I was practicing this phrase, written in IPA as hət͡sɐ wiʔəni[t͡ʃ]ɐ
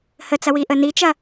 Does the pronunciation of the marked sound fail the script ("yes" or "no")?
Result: no